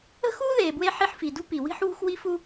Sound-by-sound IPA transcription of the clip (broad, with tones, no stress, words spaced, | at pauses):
ə̤˥xuː˥ ðeː˨bwe˦ ħi˦ħfi˨ dṳ˥pi˨ wi̤˦ħwṳ˦x wi˦fu˦